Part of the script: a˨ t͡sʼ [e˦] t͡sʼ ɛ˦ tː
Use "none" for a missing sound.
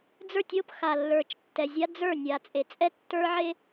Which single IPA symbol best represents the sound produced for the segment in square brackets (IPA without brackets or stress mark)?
e˨